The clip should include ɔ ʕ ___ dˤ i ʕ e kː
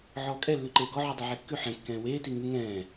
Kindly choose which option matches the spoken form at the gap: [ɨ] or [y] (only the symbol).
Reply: y